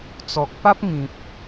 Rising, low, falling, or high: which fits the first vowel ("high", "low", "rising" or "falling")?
low